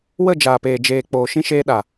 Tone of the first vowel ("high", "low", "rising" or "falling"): falling